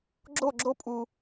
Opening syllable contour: falling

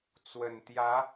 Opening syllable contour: low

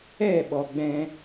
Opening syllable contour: falling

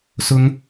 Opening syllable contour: high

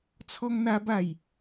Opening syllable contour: high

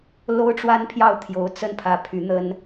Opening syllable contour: high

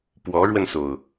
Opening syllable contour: rising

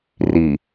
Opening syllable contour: low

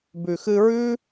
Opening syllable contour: low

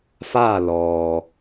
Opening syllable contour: falling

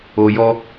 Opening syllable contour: low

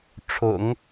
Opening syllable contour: low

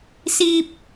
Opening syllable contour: high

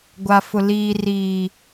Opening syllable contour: low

